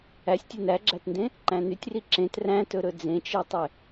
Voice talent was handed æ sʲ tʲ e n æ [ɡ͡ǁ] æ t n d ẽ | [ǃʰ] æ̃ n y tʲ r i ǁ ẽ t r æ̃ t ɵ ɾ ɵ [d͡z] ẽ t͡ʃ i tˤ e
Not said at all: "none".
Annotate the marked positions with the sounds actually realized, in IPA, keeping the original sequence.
ɡ͡ǁ, ǃ, d͡z

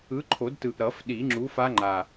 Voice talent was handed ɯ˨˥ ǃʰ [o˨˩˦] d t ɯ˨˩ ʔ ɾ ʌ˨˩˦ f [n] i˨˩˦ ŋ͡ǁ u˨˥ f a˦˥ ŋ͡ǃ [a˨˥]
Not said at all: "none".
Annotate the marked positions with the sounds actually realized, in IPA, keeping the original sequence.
o˨˩˦, ɗ, a˨˩

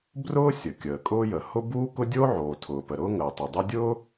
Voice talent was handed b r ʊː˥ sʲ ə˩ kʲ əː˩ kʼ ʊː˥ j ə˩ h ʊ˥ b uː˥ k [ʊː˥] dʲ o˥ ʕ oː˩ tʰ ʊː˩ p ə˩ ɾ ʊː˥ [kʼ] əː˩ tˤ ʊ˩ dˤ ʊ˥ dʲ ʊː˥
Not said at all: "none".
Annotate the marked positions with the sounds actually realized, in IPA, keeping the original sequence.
ʊ˥, ŋ

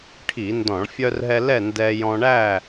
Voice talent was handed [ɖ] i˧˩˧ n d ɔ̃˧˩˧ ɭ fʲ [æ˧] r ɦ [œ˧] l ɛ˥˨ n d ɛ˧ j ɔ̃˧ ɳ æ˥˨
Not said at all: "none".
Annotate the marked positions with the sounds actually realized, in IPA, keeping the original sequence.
ʈʰ, œ˧, ɛ˧

